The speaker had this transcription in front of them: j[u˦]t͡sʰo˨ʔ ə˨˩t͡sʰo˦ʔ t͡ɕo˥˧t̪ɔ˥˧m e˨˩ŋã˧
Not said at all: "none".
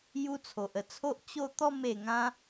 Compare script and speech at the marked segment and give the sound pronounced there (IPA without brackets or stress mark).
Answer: u˦